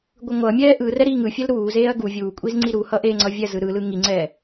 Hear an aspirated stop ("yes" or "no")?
no